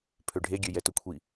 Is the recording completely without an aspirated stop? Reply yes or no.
no